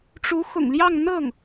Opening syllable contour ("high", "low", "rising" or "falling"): rising